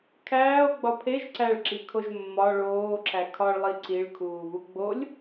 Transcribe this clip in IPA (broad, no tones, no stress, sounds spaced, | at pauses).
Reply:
kʰ æː o̯ ɡ͡b ɒ pʰ e ʒ ǀ æ ɭ ǁ i kʰ o ʒ mː ɒ ɭ oː ǁ æ kʰ ɒ ɭ lˠ i ǀ i ɭ kʰ uː β u ɡ͡b o lʲ